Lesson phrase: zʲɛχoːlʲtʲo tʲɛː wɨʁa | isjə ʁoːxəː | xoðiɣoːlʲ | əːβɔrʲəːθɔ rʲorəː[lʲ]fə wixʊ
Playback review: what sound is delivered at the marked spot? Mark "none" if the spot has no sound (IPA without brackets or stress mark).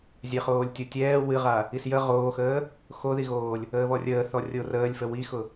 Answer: lʲ